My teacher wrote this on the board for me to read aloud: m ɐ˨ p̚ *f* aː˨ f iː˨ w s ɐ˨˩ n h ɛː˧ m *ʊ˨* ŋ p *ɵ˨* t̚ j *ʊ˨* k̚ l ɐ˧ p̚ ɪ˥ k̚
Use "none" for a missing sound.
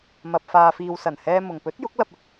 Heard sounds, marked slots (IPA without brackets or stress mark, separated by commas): f, ʊ˨, ɵ˨˥, ʊ˨˥